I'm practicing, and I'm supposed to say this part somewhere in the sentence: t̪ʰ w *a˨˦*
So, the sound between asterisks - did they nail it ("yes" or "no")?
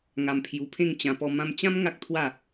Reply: no